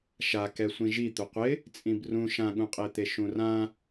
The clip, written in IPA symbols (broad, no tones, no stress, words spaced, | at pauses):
ʃakɛ sʷĩʒi t̪ʊqʷɪ | t͡sʼĩbrũ ʃãɠũqʼet̪e ʃũrã